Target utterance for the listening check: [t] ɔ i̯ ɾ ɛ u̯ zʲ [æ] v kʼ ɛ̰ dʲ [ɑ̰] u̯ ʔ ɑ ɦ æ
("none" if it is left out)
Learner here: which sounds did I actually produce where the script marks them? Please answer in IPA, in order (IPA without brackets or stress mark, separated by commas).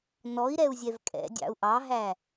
n, ɛ, ɑ̰